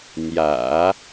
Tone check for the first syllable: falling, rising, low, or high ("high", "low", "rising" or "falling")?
low